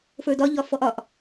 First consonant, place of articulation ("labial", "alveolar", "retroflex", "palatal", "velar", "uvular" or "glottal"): labial